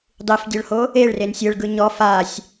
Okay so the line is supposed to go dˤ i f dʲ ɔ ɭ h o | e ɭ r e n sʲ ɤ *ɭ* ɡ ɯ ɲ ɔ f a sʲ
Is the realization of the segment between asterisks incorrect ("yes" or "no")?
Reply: no